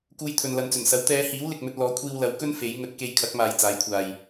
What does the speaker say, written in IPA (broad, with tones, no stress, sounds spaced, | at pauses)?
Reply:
k uː˧ j t̪ʰ ɵ˨ n l ɐ˨ n t͡s ɵ˨˩ n s ɐ˨˥ w t̪ ɛː˨˧ h iː˨˥ w l ɪ˨ k̚ m ɵ˧ t̚ l ɔː˨˥ kʷʰ iː˧ w l ɐ˨˥ w k ɵ˥ n f e˨˥ j ŋ ɵ˨˥ t̚ k e˧ j kʰ ɐ˨˥ k̚ m aː˨ j t͡s aː˨˥ j kʷʰ aː˨ j